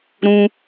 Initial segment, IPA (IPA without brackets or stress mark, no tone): ɾ